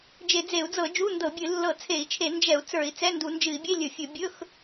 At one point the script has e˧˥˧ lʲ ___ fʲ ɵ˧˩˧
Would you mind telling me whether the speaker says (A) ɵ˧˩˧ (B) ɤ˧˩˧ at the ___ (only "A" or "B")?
A